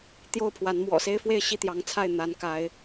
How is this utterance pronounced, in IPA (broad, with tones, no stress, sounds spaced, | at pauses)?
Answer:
t̪ j o˥˨ ʊ̯ pʰ w a˨˦ n m w ɔ̰˨˩ s e˦ ɪ̯ f w e˥˨ ɪ̯ ɕ i˥˨ t̪ j ɑ˨˦ ŋ t͡sʰ a˥˨ ɪ̯ n̪ a˨˦ n k a˨˦ ɪ̯